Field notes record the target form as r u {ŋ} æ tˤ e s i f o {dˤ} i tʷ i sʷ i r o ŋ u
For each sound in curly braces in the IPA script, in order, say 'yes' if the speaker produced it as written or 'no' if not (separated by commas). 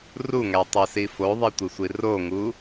yes, no